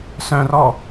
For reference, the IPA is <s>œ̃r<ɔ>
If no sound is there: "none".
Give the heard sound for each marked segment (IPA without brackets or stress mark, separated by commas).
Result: s, ɔ